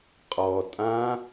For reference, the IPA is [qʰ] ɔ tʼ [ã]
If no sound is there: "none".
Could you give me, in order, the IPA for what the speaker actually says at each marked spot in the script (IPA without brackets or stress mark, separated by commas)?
qʼ, ã